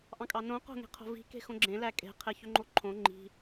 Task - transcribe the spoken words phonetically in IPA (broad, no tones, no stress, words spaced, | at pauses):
ʔɑ̃kʼɑnõ qo̤ŋe̤qʰo̤vi̤ ke̤xõɡ͡ǁẽ lækʼe̤ qʰeçøŋ͡ǃoǃʰõ ŋ͡ǃi̤